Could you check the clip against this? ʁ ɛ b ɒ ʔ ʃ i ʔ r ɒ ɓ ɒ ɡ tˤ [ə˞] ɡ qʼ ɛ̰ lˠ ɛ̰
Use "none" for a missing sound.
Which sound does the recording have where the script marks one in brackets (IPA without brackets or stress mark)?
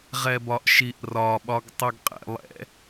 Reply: ə˞